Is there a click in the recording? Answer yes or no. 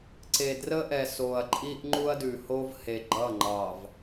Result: yes